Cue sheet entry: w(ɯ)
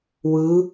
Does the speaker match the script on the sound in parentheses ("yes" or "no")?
yes